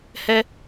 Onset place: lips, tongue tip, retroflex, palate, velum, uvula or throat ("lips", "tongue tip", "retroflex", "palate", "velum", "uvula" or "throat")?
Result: throat